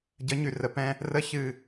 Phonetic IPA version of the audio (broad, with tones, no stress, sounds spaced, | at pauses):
ɟ ə˨˦ ɲ ʉ˨ r ə˨ p ɛ̃˦ | r ə˦ ç ɨ˦˨